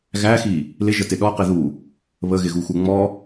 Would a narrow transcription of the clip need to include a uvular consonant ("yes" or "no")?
yes